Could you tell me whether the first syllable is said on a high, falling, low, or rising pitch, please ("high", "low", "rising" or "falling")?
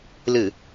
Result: low